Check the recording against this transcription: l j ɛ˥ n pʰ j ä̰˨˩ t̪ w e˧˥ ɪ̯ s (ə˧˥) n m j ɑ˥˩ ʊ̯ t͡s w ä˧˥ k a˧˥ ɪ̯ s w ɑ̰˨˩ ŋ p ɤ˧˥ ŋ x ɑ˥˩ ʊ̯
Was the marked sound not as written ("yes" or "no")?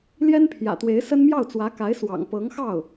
yes